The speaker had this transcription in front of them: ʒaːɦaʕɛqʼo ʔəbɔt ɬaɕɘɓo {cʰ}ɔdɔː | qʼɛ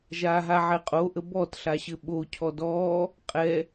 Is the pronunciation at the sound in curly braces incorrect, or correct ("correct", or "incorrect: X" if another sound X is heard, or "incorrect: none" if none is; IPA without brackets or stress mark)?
correct